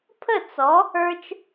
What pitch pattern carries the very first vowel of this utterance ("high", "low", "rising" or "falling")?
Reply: falling